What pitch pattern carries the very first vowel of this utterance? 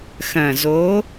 low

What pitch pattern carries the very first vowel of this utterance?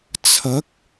rising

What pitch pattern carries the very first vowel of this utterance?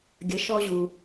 rising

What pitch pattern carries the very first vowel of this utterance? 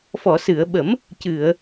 low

